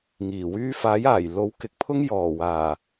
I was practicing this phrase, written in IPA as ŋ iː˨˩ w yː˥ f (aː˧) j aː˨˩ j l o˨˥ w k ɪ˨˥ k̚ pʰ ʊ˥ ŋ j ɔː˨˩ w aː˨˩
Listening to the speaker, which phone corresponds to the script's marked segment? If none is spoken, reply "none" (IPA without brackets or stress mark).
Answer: aː˨˥